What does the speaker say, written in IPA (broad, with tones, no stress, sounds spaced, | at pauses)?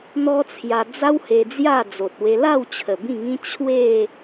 n̪ ɔ˦ t͡sʰ j a˧ d͡z a˦ w h e˧ d͡z j a˥˧ d͡z o˨ t̚ w e˧ l a˥˧ w t͡ɕʰ ə˨˩ b ĩ˥˧ ŋ ĩ˦ t͡ɕʰ w e˥˧